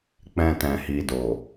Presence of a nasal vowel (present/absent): present